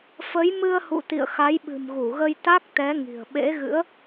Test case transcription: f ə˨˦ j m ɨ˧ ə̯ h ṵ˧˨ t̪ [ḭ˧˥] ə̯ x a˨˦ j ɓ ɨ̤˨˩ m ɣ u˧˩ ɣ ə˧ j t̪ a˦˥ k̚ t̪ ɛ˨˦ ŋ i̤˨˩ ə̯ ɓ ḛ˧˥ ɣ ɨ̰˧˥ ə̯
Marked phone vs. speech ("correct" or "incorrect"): incorrect